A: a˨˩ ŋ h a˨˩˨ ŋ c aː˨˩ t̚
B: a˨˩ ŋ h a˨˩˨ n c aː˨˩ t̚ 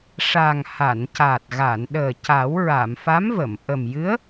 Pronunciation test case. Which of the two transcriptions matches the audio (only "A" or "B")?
B